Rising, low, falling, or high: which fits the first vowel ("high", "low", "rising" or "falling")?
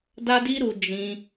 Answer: high